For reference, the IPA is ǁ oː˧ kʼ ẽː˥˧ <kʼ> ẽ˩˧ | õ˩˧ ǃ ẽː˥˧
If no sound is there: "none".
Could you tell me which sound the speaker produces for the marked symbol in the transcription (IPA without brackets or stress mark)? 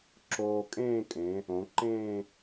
kʼ